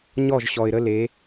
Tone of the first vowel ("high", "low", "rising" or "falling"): falling